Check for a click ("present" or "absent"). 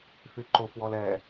present